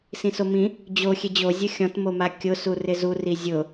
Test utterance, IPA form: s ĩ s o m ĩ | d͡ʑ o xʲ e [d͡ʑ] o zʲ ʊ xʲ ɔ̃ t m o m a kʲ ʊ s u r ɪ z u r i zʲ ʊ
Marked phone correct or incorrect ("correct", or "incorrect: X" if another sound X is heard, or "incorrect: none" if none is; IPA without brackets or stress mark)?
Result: correct